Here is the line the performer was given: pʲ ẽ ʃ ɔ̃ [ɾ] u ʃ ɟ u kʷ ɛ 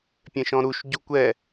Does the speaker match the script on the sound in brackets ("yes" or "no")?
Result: yes